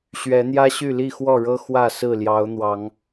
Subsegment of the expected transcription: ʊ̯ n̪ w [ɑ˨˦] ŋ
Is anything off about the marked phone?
no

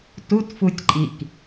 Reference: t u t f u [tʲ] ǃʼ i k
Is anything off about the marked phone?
no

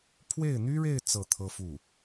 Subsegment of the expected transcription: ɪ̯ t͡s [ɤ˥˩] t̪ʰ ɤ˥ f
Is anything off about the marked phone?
no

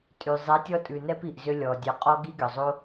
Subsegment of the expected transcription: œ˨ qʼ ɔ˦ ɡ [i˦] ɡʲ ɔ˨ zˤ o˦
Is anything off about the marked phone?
no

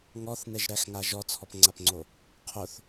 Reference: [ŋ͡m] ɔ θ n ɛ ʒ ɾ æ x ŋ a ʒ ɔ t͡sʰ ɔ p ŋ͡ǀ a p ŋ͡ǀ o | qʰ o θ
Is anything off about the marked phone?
yes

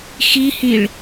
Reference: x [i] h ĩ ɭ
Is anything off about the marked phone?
no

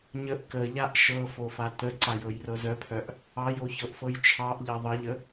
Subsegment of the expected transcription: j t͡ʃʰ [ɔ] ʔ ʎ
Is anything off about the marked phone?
yes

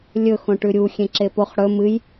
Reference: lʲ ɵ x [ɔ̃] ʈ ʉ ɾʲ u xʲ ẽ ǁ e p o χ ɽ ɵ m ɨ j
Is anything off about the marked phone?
yes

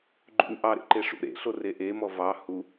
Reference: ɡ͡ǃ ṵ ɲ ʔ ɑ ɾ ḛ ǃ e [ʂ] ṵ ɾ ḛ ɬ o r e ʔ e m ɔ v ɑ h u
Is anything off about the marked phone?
no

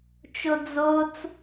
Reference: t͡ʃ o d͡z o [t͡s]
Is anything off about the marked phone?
no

